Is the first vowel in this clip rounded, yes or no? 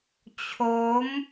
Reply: yes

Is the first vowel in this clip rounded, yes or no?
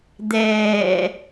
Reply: no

